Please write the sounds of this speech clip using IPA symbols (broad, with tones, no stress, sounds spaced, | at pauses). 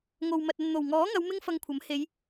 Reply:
ŋ o˨ w m ɐ˨ t̚ ɐ˨ n n̪ o˨˩ w ŋ ɔː˨˥ ŋ ɐ˨˧ w m ɪ˥ ŋ f ɐ˧ ŋ kʷʰ ɐ˨˥ m h e˨˧ j